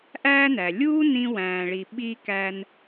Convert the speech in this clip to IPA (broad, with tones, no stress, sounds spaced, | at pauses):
ʔ æː˦ n æ˩ lʲ uː˥ n ĩ˦ w æ̃ː˨ ɭ i˨ ɓ i˥ k æ˦ n